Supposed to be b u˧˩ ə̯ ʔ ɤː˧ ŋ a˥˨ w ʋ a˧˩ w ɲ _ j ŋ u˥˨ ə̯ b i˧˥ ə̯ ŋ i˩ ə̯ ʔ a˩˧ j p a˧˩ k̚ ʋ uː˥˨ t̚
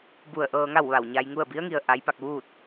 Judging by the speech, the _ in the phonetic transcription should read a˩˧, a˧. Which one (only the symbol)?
a˧